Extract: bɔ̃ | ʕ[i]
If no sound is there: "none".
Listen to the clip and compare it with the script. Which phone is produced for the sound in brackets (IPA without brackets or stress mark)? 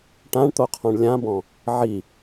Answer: i